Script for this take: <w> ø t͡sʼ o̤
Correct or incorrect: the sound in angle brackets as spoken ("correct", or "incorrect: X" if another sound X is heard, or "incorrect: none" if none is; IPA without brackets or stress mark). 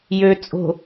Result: incorrect: j